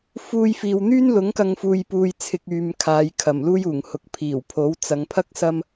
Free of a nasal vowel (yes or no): yes